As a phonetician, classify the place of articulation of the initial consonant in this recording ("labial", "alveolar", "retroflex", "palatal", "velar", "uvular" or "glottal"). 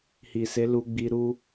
glottal